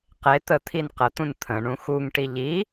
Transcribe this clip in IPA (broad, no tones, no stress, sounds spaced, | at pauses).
q e t̪ ə t̪ʰ i n q ə t̪ ũ n t̪ʰ ə̃ ɳ ũ x u ŋ ʈ i ʎ i